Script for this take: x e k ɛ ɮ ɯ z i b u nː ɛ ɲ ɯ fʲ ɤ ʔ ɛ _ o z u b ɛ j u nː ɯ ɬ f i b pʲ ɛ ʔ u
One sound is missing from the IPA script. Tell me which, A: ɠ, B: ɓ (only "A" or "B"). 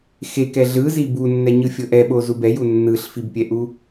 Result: B